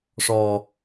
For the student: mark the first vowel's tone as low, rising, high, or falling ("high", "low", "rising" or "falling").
low